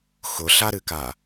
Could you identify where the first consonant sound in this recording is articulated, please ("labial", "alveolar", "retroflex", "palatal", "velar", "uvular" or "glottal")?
velar